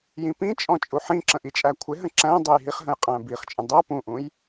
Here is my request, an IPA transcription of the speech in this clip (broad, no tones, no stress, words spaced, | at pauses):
jĩpĩt͡ʃʼɔ̃ t͡ʃʼuħĩǁə̃ ʔit͡ʃʼækʷʰɪɦə̃ ǁæ̃dˤʌj ɦiχɦə̃j qʼæ̃biχt͡ʃʼə̃ dˤʌ pũʔũj